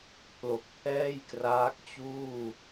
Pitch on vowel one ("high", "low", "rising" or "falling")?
low